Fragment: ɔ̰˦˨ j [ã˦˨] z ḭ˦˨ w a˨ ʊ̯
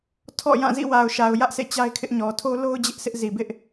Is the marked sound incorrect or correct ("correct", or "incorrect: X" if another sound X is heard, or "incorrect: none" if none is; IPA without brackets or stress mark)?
correct